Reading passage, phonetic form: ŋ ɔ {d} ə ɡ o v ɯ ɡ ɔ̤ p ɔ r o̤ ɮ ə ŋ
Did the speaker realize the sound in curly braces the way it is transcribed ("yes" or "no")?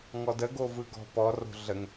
yes